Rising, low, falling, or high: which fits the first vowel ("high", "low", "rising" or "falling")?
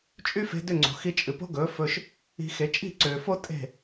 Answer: high